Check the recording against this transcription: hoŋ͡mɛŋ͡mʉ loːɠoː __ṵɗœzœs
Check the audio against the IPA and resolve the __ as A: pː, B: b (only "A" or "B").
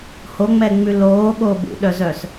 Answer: B